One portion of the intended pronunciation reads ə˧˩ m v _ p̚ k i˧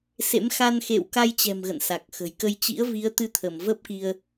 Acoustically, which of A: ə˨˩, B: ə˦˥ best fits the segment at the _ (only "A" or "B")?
B